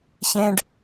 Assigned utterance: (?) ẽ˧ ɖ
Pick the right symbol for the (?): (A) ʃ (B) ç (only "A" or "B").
B